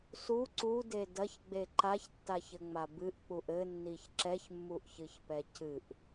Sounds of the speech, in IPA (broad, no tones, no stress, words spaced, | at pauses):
su ǀude dɐçɡ͡be ǃaçtːaçɘŋ͡ma bɨʔk͡puʔ ɘnːiç ǁɛçmːuʔçɨçpɛ cɨʔ